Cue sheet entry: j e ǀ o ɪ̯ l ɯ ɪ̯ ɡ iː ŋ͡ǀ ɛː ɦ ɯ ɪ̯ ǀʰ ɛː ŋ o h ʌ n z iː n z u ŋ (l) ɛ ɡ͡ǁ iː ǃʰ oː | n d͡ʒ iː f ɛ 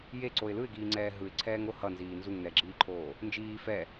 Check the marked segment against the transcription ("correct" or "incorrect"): incorrect